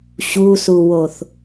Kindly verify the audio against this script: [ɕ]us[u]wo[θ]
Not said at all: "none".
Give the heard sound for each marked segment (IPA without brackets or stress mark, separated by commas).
ɕ, u, θ